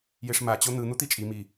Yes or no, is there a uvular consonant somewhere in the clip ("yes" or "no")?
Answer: no